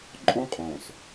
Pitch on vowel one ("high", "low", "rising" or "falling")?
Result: high